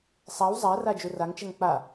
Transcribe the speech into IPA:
sˤaw zˤæra d͡ʒuraŋt͡ʃɛŋ k͡pa

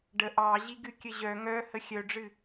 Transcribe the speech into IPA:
ɖə ʔɑʑiɡɨ kʲəʑœ ŋœ həxʲœɖ͡ʐɨ

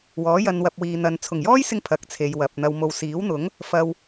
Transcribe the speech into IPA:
wɔː˨˥jɐ˧nwɐ˧p̚wiː˨ n̪ɐ˨n t͡sʰʊ˨˩ŋjɔː˥jsɪ˧ŋ pʰɐ˨˥k̚t͡sʰe˨jwɐ˨p̚n̪ɐ˧w mo˨wsiː˨˥wn̪ʊ˨˥ŋ | fɐ˨w

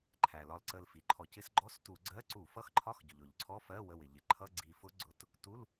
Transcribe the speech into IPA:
ǃʰæ˩lɒ˧˩lǀə˧˩l fi˩ǃʰɔ˧˩˧cɪ˦˥s ɡ͡ǃɔ˧˥˧stu˧˩˧ɡ͡ǀɜ˧˥˧ ǀu˧˩˧fʌ˧˥˧xǃʰɒ˧˥˧x ɟʊ˩ʎʊ˧˩˧ʎǀʰɔ˧˥˧fɜ˧˥˧ wə˧˩wɪ˩ ʎɪ˩ǃʰʌ˧˥˧ɡ͡ǀi˧˩fʊ˦˥ ɡ͡ǀʊ˧˥˧t | tu˧˥˧l

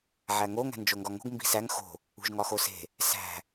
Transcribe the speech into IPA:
ʕæŋo ŋæ̤nd͡ʒoŋɡɒŋo̤ɡ mbi̤sæŋ xo̤ | ṳʒŋɒxose̤ | sæ̤

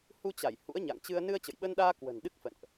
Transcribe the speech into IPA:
hu˧t͡ɕa˧˩j hṵ˧˥ə̯ɲa̰˧˨ŋt͡ɕɨ˧ə̯ nɨ˧ə̯t͡ɕə̰˧˨jɓə˧nɗaː˧ kwə̤˨˩nɗɨ˦˥k̚fə̰˧˨nʔ

